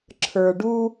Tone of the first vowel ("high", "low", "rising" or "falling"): low